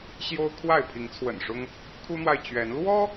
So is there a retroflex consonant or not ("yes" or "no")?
yes